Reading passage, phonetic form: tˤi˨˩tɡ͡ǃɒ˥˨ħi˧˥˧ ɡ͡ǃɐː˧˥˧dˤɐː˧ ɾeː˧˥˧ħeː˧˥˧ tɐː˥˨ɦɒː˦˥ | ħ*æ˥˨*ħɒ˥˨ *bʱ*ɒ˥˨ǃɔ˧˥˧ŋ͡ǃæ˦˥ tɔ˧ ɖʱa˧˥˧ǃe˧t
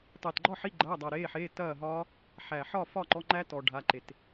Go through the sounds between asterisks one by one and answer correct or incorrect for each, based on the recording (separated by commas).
incorrect, incorrect